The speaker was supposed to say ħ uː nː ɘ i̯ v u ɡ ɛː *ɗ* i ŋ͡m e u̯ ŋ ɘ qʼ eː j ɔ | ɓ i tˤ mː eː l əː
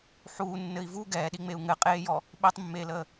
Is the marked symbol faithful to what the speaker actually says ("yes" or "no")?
yes